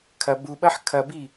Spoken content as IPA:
kʰ ɐ b u ɓ ɐ ħ kʰ ɐ b i

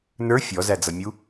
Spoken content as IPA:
n ə˞ fʲ ɔ z æ d͡z ʌ mʲ u

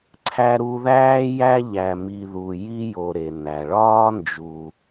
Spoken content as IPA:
ǀʰ æ˦ ɾ u˦ ð æː˥ j æ˦ ʎ æ˨ m i˨ ð u˨ j i˦ j o˨ ɾ e˩ n æ˩ ɭ ɒː˥ n d͡ʒ u˨

